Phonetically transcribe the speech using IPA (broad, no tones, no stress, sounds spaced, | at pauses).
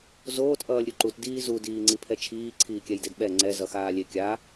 z oː t ʔ ʌː lʲ ɾʲ u ǃ u t d iː z u d iː ŋ͡ǀ i pʰ ɛ t͡ʃʰ iː ǀʰ iː kʲ ɛ j d e d ɓ ɛ ŋ͡ǀ ɛ z ʌ x aː lʲ e kʲ a